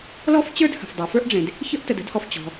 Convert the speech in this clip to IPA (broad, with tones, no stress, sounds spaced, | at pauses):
l ɔ˥ f t͡ɕ ə˞˥ d h ə̤˩ f dˤ ə˞˩ f ə˞˥ ʔ ɖ͡ʐ ẽ˩ d | ç ə˥ ʔ t ə˩ d ə̤˥ d h ɔ˩ f t͡ɕ ɔ̤˩